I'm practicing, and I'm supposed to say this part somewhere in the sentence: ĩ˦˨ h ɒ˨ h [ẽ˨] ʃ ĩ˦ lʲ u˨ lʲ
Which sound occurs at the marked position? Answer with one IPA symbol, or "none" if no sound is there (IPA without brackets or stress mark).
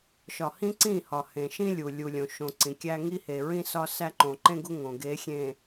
ẽ˨